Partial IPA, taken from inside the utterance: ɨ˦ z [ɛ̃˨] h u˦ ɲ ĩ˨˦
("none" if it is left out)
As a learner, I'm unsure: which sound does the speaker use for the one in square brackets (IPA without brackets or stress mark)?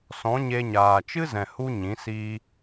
ɛ̃˨